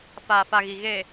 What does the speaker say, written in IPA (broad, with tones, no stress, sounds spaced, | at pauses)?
f aː˨ f a˨ ɣ i˨ ɣ e˨